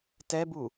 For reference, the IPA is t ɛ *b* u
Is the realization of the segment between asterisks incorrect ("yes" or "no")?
no